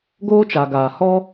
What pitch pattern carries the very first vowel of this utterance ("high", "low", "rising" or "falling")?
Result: high